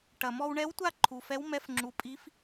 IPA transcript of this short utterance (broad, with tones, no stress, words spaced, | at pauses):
ʈɐ˩mɔ˧wɳɛ˧˥wtʷa˥˨ ǃʰu˩fɛ˧˥wmɛ˧˥fŋ͡ǁu˩˥ pʼi˧˥f